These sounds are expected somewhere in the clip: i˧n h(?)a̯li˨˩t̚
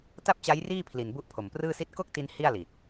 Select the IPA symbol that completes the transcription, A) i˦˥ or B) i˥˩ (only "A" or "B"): B